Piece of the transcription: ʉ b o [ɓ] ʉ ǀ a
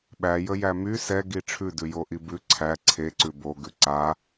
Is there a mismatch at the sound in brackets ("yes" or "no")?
yes